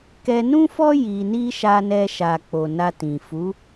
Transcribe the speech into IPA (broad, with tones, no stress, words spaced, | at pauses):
kɛ˧nũ˦fɔ˦ ji˧ni˦ ʃa˧nɛ˧ʃa˨ k͡po˨na˧tĩ˨ fu˨˦